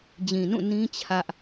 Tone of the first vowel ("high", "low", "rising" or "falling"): low